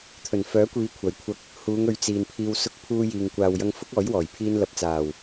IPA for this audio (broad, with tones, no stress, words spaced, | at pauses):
t̪ʰɵ˨˩nfœː˨˥kʷiː˨˧ kʷʰɐ˨˩jkʷʰɐ˧k̚ | huː˨˧ŋɵ˨˧ɥ t͡siː˨npʰiː˧w sʊ˧k̚ pʰuː˧jiː˨ŋ kʷaː˨wjɐ˧ŋ fʊ˥k̚ɔː˨˥jwɔː˨˩j pʰiː˧nlɐ˨p̚t͡saː˨˩w